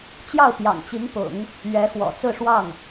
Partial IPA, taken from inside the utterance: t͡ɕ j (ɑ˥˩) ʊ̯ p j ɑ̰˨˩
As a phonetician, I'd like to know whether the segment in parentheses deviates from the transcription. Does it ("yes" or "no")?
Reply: no